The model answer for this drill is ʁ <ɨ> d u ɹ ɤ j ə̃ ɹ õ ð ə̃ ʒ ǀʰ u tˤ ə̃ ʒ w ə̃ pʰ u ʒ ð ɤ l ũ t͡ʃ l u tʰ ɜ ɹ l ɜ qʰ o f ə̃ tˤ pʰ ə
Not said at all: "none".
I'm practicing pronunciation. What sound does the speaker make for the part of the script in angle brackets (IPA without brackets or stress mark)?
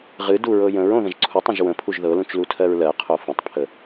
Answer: ɨ